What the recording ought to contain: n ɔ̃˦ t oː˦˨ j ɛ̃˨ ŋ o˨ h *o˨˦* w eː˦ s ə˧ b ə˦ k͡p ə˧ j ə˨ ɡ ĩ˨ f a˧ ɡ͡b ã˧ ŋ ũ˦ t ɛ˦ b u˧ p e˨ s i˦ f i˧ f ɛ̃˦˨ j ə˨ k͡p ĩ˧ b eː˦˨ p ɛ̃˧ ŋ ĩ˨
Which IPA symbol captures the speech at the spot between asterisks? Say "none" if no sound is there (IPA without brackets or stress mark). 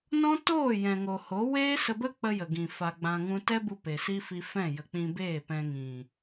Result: o˨˦